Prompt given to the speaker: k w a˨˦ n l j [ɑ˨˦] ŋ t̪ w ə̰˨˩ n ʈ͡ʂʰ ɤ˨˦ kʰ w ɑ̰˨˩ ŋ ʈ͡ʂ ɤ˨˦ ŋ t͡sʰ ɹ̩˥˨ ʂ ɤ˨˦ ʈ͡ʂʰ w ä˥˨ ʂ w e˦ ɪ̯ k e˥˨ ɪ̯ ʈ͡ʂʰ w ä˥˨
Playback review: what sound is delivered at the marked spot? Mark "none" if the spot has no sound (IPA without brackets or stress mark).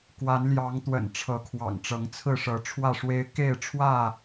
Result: ɑ˨˦